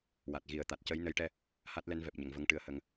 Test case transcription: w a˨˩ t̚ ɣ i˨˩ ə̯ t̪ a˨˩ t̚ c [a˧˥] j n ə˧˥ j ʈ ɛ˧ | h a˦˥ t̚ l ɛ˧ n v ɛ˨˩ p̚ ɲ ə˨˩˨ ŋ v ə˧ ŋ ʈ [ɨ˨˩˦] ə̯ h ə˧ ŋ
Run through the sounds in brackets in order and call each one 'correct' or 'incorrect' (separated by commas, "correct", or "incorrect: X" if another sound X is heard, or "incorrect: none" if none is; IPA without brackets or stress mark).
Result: incorrect: ə˧˥, incorrect: ɨ˧